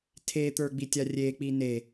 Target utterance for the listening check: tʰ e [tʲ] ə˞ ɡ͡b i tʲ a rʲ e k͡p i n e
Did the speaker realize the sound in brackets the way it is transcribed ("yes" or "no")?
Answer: no